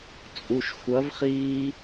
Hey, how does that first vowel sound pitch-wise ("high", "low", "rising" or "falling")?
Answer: low